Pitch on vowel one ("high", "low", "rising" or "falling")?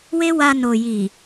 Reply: high